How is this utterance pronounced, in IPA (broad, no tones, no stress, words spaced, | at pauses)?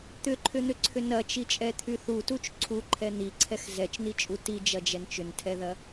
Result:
t̪ʏǃʰʏn̪ʏǀʰʏ nɐt͡ʃit͡ʃʼɛt̪ʰy θutut͡ʃ ǀʰuǃʰɛ n̪iǀʰɛx zɛt͡ʃn̪it͡ʃʼu tid͡ʒɐd͡ʒɛn t͡ʃʏntʰɛðɐ